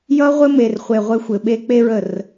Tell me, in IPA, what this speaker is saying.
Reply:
j ʌ˦ ʁʷ ɘ˦ m e˧ r χʷ e˧ ʁʷ ɘ˧ xʷ ɘ˨ ɓ e˦ k͡p e˦ ɹ ə˦˨ r

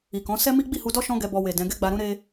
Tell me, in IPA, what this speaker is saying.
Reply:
i˨ k ɔ̃˨˦ s ɛ˦ m i˦ ɡ͡b i˦˨ h u˧ d ɔ˦ ʃ ɔ̃˦ ɡ ɛ˧ b ɔ˧ w e˨ d ɛ̃˨˦ ɡ ɛ˦ ɡ͡b a˧ ɾ ũ˦ ɾ e˦

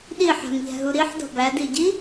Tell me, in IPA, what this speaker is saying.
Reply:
ɗ i ħ æ̤ m ʎ æ̤ ɦ u ɾ i ħ d ɔ̤ b æ d i ɟ i

